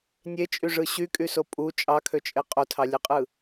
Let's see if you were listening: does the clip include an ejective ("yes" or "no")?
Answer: yes